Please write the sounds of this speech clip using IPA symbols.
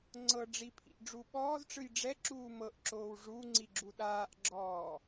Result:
ŋ͡ǀ ɤ ɖ͡ʐ i pʰ ḭ ʔ ɖ͡ʐ u ɓ ɔː z ʈ͡ʂ ɯ j ɖ͡ʐ ɛ ǁ uː m ɤ ʔ ǁ oː w ʐ u ŋ͡ǀ i ɡ͡ǁ u ɗ aː ʔ ɡ͡ǁ ɔː

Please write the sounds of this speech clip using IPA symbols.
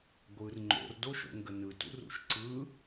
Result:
ɡʷ ɯ r ŋ͡ǃ o̰ r d o ʃ o̰ ŋ ɡ ə n ɯ t ṵ r ṵ ʃ ǀ ɯ

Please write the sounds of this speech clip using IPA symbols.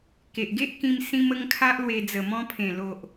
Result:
k e˨ ʔ ɡ e˦ ʔ k ĩ˧ m s ĩ˦ m ə˦ ŋ kʰ a˦ ʔ l w e˧ d͡z ə˨˩ m ɔ̃˧ pʰ ẽ˨˩ l o˨ ʔ

